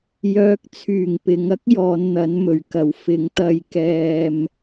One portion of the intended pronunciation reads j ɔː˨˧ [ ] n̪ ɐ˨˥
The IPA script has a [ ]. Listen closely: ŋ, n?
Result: n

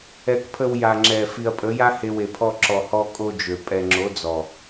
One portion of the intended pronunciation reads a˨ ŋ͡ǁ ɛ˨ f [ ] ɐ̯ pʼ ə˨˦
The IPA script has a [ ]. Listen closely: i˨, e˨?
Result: i˨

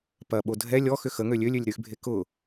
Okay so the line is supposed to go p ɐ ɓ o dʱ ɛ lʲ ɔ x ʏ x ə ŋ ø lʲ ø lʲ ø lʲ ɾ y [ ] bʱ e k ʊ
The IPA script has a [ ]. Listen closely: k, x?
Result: x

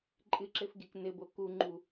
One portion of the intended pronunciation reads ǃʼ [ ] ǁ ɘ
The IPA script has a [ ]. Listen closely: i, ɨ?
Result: ɨ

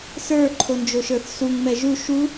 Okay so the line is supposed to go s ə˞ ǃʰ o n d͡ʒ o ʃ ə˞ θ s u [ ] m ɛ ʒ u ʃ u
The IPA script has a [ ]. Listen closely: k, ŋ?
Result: ŋ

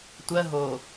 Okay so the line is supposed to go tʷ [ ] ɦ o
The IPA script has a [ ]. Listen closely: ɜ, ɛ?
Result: ɜ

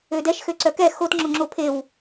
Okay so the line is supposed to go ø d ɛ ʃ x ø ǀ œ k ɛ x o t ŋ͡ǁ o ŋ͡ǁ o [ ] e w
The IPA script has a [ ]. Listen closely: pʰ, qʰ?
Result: pʰ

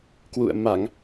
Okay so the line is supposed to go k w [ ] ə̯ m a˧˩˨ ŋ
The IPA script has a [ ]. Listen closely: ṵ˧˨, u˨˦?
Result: ṵ˧˨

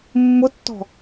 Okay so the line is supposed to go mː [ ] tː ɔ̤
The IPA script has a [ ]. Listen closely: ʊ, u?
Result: ʊ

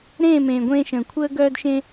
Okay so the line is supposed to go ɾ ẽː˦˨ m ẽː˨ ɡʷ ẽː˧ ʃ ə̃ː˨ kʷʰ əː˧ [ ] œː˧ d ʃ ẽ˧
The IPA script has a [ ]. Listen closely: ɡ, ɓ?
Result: ɡ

